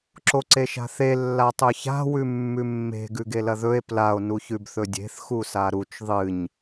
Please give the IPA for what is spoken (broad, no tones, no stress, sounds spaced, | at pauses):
ǁ o ǀ e ʃ a̤ θ e lː a tˤ ɵ ç a̤ w ʉ mː ʉ mː e̤ ɡ ʉ ɡ e l ɐ ð ɵ e̯ p l a o̯ n u ç ʉ b θ ɵ dʲ e̤ θ x u s a ɾ u t͡ʃ ðˤ ɨ ɲ